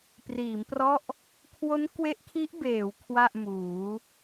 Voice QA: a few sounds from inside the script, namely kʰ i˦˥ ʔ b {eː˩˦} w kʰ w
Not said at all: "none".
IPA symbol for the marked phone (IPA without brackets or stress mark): eː˩˦